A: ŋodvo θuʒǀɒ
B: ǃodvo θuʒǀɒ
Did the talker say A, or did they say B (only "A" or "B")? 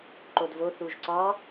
B